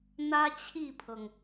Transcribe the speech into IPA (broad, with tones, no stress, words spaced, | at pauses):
n̪ä˥t͡ɕʰi˥˩pʰɤ˩ŋ